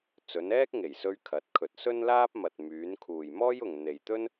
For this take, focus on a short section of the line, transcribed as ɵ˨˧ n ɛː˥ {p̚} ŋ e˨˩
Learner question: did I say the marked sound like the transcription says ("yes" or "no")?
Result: no